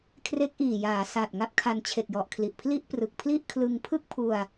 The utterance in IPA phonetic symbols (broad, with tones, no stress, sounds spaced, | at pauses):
kʰ r e˦˥ k̚ ʔ iː˨˩ j aː˩˦ s a˨˩ t̚ ŋ a˦˥ p̚ kʰ a˧ n t͡ɕʰ e˨˩ k̚ j ɔ˨˩ ʔ kʰ l i˨˩ ʔ pʰ l i˥˩ ʔ p r ɯ˨˩ k̚ pʰ l i˥˩ ʔ kʰ l ɯ˧ ŋ pʰ ɯ˥˩ k̚ pʰ u˧ a̯